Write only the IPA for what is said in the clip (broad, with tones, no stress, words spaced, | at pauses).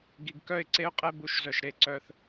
ɡi˨ɡkœ˦˨ɪ̯ǀe˦ʊ̯qʼɛ˦ bu˨ʃzœ˨ʃ ɾe˨ǀœ˦θ